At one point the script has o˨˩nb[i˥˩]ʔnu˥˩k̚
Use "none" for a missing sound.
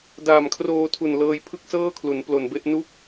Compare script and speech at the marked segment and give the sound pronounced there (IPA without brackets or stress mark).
e˥˩